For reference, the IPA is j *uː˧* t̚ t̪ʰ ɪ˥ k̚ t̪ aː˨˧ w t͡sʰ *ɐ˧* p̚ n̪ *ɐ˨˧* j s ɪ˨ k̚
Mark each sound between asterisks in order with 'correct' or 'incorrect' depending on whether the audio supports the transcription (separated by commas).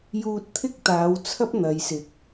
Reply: correct, incorrect, correct